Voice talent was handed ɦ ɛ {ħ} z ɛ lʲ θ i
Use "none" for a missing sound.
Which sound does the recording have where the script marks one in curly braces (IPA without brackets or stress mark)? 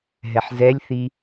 ħ